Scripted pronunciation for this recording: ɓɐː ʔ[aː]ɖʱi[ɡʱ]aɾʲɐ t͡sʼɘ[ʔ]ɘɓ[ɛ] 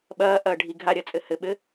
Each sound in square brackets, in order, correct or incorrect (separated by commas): incorrect, correct, incorrect, incorrect